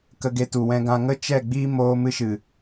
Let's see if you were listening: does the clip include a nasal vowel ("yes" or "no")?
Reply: yes